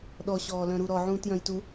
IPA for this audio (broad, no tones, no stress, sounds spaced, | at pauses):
ɗ ɔ ɕ ɔː l œ̃ ɾ u ɾ ɔ ʕ ũː t j œ̃ j t u